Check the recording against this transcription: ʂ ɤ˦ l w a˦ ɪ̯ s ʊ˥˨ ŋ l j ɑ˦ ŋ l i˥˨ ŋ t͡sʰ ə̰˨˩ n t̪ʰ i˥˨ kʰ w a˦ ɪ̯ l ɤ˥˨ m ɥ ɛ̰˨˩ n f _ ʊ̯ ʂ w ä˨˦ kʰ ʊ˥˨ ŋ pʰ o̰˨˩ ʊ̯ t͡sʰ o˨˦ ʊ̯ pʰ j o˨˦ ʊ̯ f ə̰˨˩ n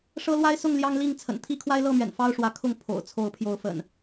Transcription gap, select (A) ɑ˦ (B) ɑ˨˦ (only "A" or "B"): A